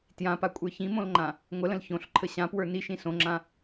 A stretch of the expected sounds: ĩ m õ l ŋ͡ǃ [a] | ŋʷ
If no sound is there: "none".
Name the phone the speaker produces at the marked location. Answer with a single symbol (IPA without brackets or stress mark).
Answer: ã